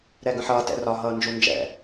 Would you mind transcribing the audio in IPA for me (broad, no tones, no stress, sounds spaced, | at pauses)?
ɾ ɛ ɡ ə̃ ħ ʌː t ɛ̰ r ɒ ɦ ʌː n d͡ʒ u n d͡ʒ ɛ̰